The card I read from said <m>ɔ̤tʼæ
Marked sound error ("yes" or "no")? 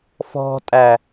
yes